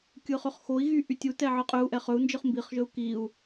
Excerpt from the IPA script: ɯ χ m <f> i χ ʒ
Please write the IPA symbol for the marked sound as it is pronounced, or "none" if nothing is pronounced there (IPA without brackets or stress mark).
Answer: b